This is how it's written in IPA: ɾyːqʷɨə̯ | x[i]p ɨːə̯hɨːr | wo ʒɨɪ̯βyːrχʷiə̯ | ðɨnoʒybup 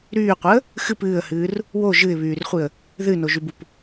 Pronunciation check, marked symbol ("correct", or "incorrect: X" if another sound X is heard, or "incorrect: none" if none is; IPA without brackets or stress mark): incorrect: ɨ